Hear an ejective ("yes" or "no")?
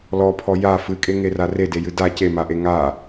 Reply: yes